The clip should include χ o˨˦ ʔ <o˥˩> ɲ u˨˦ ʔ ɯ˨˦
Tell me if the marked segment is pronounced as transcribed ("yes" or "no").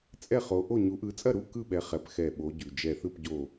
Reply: yes